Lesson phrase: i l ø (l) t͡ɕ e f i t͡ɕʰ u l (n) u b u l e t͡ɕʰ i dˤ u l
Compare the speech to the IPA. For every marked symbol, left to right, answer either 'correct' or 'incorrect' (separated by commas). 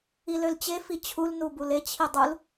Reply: correct, correct